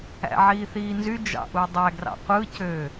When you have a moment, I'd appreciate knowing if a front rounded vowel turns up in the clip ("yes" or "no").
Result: yes